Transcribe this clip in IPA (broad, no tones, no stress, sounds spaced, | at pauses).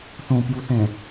θ õ p j u θ ɛ̃